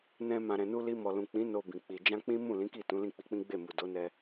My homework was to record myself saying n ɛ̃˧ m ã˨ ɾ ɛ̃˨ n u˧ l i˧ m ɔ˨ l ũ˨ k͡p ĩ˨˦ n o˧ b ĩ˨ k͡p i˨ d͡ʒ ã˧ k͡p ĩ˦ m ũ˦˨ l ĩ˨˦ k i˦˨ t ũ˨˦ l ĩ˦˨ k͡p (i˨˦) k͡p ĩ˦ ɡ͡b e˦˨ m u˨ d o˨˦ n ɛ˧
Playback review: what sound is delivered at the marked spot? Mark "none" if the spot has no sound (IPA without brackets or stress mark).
i˨˦